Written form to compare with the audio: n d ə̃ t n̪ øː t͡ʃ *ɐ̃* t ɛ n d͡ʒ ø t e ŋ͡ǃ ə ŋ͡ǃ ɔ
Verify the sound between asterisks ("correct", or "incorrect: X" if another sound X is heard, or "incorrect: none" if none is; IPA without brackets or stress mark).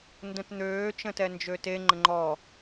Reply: incorrect: ə̃